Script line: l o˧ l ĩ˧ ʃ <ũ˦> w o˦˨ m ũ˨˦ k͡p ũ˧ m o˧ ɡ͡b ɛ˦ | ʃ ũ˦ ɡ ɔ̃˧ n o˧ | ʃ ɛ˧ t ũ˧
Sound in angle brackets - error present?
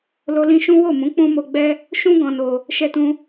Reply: no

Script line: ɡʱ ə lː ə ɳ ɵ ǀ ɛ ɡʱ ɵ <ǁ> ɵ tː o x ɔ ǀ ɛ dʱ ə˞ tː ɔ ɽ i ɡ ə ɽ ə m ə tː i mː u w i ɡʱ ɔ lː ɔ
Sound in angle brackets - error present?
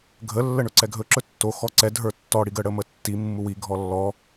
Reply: no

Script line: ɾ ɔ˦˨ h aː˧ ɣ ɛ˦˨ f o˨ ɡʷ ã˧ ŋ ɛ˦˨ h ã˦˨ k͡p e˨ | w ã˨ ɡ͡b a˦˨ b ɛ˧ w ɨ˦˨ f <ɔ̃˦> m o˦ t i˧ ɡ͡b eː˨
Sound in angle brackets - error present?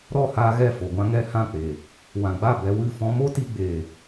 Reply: no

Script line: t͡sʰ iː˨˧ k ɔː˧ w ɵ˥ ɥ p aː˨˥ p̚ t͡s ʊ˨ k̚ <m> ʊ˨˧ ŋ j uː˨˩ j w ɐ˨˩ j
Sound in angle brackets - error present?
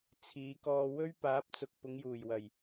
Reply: yes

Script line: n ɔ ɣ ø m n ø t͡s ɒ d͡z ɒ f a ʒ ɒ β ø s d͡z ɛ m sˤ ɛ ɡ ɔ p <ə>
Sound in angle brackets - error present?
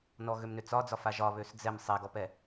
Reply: yes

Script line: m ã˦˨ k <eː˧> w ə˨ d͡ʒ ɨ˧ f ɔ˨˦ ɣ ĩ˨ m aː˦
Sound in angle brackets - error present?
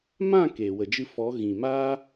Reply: yes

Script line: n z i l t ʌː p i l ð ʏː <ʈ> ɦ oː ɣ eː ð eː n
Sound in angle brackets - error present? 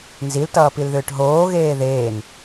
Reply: no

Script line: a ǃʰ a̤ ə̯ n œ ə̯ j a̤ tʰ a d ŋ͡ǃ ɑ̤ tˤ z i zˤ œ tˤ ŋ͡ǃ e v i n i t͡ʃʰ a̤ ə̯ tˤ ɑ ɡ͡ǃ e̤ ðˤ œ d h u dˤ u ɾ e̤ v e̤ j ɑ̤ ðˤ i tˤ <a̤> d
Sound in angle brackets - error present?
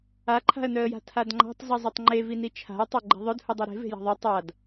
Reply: yes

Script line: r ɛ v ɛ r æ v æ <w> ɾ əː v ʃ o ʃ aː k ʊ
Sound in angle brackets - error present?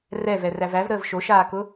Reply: yes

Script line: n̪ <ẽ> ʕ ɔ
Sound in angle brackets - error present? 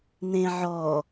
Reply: no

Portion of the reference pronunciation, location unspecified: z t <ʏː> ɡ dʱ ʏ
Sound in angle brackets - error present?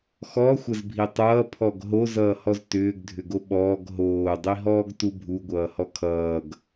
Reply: no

